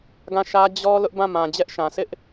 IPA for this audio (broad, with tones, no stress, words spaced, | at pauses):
ɡã˦˨ʃä˦ d͡ʑɔ˦ lʊ˦ʔbã˦˨ mã˨ d͡ʑɛ˦ʔʃã˨ sɪ˦ʔ